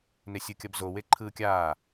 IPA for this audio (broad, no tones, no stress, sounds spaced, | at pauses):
n e sʲ ɯ kʲ ʌ b z o w e ǃʰ ɯː kʲ aː